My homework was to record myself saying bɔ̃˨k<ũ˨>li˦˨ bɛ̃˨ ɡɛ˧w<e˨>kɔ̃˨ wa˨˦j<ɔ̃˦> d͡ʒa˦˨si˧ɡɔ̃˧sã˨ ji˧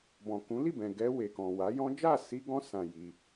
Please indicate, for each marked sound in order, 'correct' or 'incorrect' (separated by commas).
incorrect, correct, correct